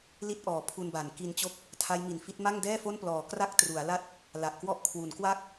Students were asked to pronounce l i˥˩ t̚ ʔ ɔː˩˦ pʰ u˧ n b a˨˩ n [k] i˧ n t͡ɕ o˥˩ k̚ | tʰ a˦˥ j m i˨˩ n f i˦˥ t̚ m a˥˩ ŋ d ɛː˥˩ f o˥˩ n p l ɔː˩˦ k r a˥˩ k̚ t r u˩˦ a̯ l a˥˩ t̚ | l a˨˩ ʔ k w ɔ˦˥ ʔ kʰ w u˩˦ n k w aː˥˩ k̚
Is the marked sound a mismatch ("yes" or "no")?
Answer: no